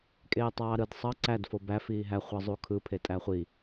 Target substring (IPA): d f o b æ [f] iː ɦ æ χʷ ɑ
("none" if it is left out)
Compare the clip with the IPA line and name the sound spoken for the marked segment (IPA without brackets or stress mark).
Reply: f